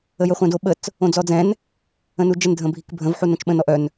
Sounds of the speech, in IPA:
ə j ə χʷ ɛ̃ d o ɓ ə t͡s | õ d͡z ɔ d͡z ɛ̃ n | ə̃ n u d͡ʒ ə n dʱ ə̃ bʱ i k bʱ ə̃ v ħ u n õ t͡ʃ ɓ ə̃ n ɔ ʔ œ n

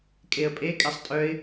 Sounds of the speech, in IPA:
kʼ e ə̯ pʼ e kʼ ɛ sˤ tʼ œ ɪ̯

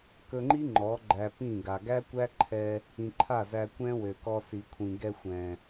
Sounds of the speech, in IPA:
k ɵ˧ ŋ͡ǃ i˦ ŋ͡ǃ ɔ˨˦ ɡ͡ǃ æ˧ p ĩ˦˨ ɡ a˨ ɡ æ˦ kʷ æ˦ ǃʰ ɛ˧ | ĩ˨ ǃʰ a˦˨ z æ˧ kʷ ɛ̃˦ w ø˨ k ɔ˧ s i˨ kʷʰ ĩ˨ ɡ ɛ˧ xʷ ɛ̃˨

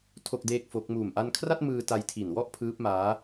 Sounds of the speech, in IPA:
tʰ o˥˩ k̚ d eː˥˩ k̚ f o˦˥ k̚ m uː˨˩ m ʔ a˧ n kʰ r a˥˩ t̚ m ɯː˧ t a˧ j tʰ i˨˩ n w ɔ˥˩ ʔ pʰ ɯː˦˥ p̚ m aː˦˥

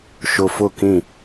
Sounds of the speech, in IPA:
ʃ ʊ˨ f ʊ˦˨ k ĩ˦˨

